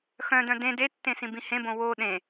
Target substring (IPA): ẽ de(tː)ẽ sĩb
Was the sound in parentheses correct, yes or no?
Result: yes